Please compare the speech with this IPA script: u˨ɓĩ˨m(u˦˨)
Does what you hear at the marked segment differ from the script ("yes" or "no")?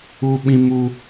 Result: yes